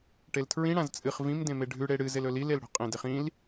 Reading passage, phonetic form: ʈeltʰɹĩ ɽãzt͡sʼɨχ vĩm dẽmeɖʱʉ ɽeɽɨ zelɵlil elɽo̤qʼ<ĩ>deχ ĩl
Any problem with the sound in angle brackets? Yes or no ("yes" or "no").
yes